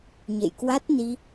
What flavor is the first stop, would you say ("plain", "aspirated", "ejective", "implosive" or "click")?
plain